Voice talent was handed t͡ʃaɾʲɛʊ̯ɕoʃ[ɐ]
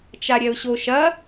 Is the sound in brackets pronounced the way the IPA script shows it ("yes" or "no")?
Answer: yes